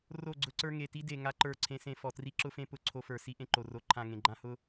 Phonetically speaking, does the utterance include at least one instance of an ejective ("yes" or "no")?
no